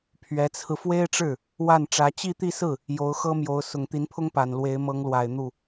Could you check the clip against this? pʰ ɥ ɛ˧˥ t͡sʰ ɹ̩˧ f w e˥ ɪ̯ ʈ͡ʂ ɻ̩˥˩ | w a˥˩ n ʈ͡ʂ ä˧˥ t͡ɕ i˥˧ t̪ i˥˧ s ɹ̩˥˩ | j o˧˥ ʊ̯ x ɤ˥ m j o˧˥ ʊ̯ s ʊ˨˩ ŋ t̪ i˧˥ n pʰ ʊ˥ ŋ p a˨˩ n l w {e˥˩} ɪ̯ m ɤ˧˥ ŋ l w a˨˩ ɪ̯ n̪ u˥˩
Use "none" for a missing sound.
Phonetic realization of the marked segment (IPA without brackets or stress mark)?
e˧˥